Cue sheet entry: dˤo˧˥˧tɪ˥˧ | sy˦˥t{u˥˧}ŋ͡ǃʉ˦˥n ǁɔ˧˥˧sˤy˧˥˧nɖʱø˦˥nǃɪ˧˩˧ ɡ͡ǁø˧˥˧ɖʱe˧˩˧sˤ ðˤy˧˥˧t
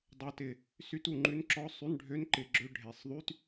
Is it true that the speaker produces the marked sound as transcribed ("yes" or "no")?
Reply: yes